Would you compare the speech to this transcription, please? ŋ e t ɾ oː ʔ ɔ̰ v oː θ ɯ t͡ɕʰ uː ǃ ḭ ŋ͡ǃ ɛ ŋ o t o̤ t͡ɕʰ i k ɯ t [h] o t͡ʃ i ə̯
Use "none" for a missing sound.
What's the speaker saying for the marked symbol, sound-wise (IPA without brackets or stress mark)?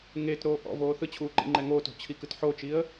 ħ